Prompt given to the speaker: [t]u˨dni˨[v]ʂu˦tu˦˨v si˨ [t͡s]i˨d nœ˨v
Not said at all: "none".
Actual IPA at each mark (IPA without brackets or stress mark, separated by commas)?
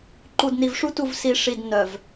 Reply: ǃ, v, ʂ